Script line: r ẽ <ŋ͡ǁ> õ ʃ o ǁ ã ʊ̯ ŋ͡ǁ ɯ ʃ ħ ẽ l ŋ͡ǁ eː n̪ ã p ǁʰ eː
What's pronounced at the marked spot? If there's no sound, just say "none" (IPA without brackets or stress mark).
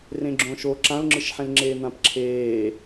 ɡ͡ǁ